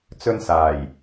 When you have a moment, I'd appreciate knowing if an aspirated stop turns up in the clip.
no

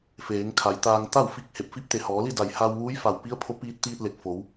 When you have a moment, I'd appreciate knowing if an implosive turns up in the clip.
no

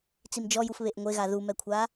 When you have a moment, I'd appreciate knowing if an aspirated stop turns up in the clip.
yes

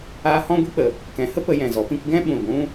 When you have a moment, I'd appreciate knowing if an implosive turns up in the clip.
yes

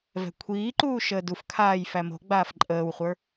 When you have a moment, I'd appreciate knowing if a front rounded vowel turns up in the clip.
no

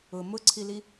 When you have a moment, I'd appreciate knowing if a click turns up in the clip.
yes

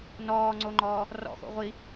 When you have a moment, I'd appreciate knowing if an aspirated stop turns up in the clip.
no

